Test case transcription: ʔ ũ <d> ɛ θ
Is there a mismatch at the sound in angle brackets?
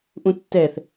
yes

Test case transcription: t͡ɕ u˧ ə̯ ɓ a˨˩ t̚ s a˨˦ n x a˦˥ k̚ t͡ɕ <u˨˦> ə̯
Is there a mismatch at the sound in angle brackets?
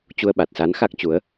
no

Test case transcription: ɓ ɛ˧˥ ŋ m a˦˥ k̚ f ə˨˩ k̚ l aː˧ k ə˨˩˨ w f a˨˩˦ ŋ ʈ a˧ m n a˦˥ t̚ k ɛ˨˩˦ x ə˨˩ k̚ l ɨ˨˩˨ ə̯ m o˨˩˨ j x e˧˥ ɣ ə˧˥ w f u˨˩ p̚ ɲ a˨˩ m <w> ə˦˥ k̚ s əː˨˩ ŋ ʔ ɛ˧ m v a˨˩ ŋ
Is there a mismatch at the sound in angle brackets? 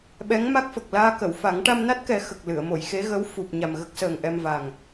yes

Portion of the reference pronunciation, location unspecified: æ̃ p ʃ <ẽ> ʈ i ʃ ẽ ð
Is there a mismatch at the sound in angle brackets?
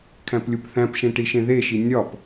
no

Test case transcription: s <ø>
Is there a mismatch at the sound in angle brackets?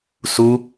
yes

